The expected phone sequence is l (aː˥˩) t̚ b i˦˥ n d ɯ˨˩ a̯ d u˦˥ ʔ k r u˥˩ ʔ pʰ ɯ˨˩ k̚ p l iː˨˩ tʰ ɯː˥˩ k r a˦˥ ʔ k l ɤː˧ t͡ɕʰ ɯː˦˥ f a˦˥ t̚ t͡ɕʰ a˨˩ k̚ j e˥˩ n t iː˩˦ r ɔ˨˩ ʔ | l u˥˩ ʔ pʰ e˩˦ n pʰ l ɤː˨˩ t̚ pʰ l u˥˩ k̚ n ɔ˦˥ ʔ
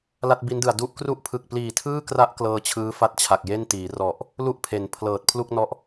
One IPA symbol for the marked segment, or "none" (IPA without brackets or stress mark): a˥˩